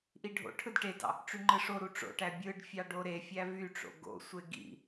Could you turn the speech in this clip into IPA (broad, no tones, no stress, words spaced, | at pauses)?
ʔiɖʱo̰ʈʰɯd ʈedɑ̰ | ʈ͡ʂyŋ͡ǃɯʂoɾu ʈ͡ʂo̰ʈæ bʲɯɖ fʲɑɖoɾefʲæ vyʈ͡ʂo̰ ɡo̰sʷe ɡḭ